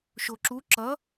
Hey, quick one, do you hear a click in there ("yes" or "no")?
yes